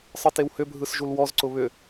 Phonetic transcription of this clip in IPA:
sˤ ɯ t e w h ʏ bʱ ɯ s ʒ u l w ɔ z ǀ ʊ β ʏ

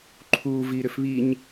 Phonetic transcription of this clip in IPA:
ǃʰ uː v iː ɾ ʏ f β i ɲ

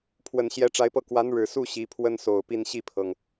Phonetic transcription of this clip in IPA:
pʰ w ə˨˩ n ɕ j ɛ˧˥ ʈ͡ʂ a˧˥ ɪ̯ p ɤ˥˩ k w a˧˥ n ɻ ɻ̩˨˩ s u˥˩ ɕ i˧˥ pʰ w ə˥ n s o˨˩ ʊ̯ p i˥˧ n ɕ i˥˩ pʰ ɤ˩ ŋ

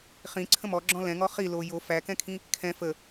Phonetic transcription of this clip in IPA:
χ ĩ ǀʰ ə̃ m ɔ ɡ͡ǁ ɔ̃ l ɛ̃ ŋ ɔ χ i l o j o f æ k ɛ̃ kʰ ĩ | kʰ ɛ̃ f ə

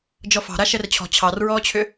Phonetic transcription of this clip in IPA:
d͡ʒ ɔ f ɑ̤ ɾ a ʃ ɛ r t͡ɕʰ ɔ̤ t͡ɕʰ ɑ r ɹ ɔː t͡ɕʰ ʏ

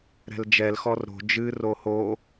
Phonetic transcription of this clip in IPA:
ɾ ɛ̤ l d͡ʒ ɛ l x ɔ r ɾ o̤ d͡ʒ ɨ r o h o

